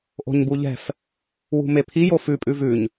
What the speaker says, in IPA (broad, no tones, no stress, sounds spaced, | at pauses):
ʔ o̤ ɲ b u ʎ ɛ̤ f | w ṳ m e pʰ i j o f ʉ pʼ ʉ v ʉ ɲ